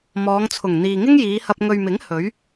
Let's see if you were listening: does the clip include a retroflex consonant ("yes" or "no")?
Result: no